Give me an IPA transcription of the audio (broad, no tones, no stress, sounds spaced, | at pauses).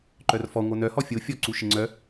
ǃ œ r f ɔ ŋʷ œ n œ h ɔ fʲ o fʲ ɔ ǀ u ʃ ɪ ŋ͡ǀ œ